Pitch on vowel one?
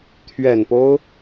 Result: low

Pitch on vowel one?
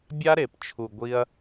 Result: high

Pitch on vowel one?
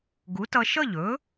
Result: rising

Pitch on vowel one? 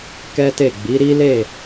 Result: high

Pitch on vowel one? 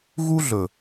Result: high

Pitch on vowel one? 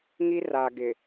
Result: high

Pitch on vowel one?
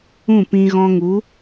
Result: falling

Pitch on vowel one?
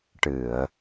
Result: low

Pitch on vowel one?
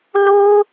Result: high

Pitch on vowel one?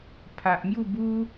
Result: low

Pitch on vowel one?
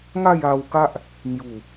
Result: falling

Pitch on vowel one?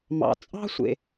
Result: low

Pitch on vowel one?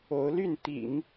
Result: rising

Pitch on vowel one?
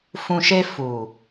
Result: low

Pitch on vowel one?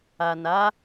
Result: low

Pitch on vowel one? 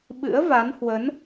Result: rising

